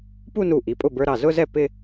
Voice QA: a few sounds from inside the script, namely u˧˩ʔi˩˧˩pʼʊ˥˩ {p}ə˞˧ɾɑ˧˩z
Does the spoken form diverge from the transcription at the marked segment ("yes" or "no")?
yes